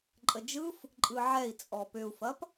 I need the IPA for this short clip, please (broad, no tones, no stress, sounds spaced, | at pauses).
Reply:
ǃʼ ə d͡ʒ ɯ f | ǃʼ ɯ ʕ ɛ i̯ t͡sʼ ɔ p ʏ u̯ f ɐ p